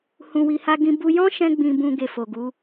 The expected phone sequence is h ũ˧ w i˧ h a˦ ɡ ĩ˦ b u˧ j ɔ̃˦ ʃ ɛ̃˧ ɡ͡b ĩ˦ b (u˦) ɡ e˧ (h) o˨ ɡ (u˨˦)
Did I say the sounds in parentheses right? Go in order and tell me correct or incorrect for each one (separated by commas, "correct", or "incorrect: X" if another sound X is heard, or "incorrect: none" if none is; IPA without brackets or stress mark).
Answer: incorrect: ũ˦, incorrect: f, correct